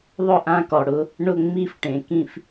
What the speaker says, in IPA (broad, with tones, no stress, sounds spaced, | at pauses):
ðˤ ʊ˥˩ ʔ ã˥˧ k ɔ˩ ɽ ʊ˨˥ | ɳ ʊ˥˩ ŋ͡m i˥˩ f ʈ ẽ˩ k ĩ˥˩ f